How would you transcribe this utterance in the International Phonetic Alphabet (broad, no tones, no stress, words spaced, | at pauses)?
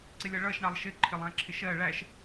ǀɪlʲʌɭʌʃ ɳɑlˠʃɪ ǃʰɪlˠæ̃ǁʰɪʃɜ ɭæʃ